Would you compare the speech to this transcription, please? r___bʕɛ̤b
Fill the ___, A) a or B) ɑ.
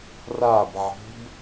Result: A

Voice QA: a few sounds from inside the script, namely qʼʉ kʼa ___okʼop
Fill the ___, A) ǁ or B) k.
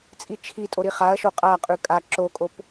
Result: A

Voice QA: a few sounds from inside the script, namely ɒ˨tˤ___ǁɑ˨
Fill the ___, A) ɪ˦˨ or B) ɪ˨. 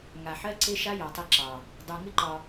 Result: A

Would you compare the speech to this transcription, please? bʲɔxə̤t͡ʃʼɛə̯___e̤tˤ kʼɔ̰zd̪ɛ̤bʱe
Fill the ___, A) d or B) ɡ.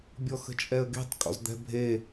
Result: B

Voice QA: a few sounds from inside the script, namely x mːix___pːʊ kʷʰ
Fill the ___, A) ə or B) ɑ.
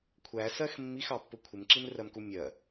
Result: B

